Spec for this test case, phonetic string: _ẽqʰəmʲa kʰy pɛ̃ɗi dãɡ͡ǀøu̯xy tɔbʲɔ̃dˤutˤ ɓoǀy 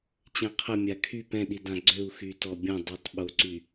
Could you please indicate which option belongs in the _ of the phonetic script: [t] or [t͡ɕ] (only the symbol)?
t͡ɕ